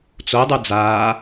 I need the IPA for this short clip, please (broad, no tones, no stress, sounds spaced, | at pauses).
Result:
t͡s o dˤ u d͡z aː